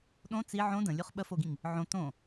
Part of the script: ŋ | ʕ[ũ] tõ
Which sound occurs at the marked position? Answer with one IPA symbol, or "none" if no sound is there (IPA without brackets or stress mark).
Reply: õ